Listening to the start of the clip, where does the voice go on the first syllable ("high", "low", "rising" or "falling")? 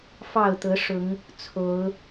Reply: falling